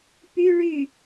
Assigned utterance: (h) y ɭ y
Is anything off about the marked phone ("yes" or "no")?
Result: yes